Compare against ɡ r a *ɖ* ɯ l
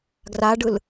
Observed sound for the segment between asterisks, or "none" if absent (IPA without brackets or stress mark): ɖ